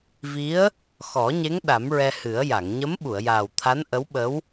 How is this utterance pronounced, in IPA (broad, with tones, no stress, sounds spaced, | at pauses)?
v i˧˥ ə̯ | x ɔ˨˩˦ ɲ e˧˥ ŋ ɗ a˨˩˦ m ɹ ɛ˧ h ɨ˨˩˦ ə̯ j a˨˩˨ ŋ ɲ ə˧˥ m ɓ u˨˩˨ ə̯ j aː˨˩ w t̪ʰ a˧˥ n ʔ ə˧˥ w ɓ ə˧˥ w